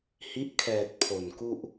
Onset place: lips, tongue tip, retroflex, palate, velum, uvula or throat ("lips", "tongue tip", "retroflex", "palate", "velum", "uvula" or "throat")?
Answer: throat